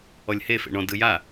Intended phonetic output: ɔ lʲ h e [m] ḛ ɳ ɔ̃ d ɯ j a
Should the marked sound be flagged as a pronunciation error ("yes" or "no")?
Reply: yes